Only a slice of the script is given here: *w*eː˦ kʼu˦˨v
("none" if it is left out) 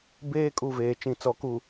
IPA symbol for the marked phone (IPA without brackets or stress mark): b